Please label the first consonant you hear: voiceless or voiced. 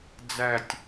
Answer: voiced